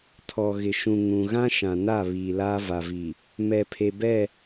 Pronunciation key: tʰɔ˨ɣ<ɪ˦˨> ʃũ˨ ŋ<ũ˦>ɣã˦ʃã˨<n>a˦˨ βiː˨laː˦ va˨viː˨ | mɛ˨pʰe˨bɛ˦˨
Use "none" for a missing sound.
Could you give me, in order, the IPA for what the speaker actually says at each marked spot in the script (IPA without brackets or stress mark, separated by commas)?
ɪ˨, ũ˨, n